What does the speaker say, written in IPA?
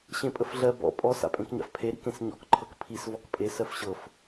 ɕ ẽ pʼ ə f ɮ ɜ b ɔ̰ pʼ ɔ s a̰ pʼ ẽ k ɲ a̰ f pʰ e ɾ ḭ k ẽ s ɲ ɔ̰ k ǃʰ ɤ k pʰ i s v ɔ k pʼ e s ɜ f ɕ ɤ f

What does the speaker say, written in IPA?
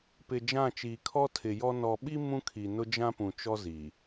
p ɪ˨ d͡ʒ ã˦˨ t͡ʃ iː˨ kʰ ɔ˦ tʰ ɪ˨ j ɔ˦ n ɔ˨ ɓ i˦ m ũ˦ kʰ i˨ n ʊ˦ d͡ʒ ã˦ p ũ˨ t͡ʃ ɔ˦ z i˨

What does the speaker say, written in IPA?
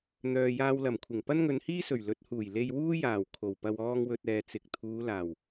n̪ œː˨ j aː˧ w l ɐ˨˩ m kʷʰ ɪ˨˩ ŋ p ɐ˥ n ŋ ɵ˨˧ n h iː˥ s ɵ˨˩ ɥ l ɵ˨˥ t̚ h uː˨˩ j l e˧ j w uː˥ j aː˨˩ w kʰ o˨˩ w p ɐ˧ w ɔː˧ ŋ w ɵ˨ t̚ ɛː˨ t͡s ɪ˨ k̚ t̪ʰ uː˨˧ l aː˨˩ w

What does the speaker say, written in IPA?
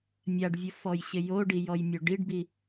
mʲ a ɖ vʲ ʊ f ɔ j ɕ ɪ j o ɖ i j ɔ j mʲ o ɖ i ɖ b i

